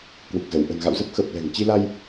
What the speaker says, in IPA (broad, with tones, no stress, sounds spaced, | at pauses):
k w ɨ˨˩ k̚ z ə˧˩ w ʔ ə̤˨˩ n ɣ a̰˧˨ w z ə˦˥ p̚ x ə˨˩ p̚ l ɛ̤˨˩ ŋ t͡ɕ i˧ l a˧ j